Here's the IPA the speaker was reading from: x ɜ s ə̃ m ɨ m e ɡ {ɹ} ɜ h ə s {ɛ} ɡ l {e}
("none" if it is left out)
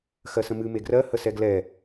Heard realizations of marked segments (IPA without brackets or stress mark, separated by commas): r, ɛ, ɛ